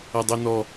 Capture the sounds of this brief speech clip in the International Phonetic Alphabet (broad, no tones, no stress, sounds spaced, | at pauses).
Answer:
ɐ dˤ o n ɔ